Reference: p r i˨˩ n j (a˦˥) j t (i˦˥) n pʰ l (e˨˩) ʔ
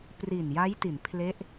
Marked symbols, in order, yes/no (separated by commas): yes, no, no